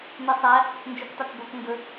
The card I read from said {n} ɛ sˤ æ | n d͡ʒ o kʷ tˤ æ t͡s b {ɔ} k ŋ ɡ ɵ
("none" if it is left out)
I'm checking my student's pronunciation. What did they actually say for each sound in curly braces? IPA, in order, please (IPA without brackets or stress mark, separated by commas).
n, o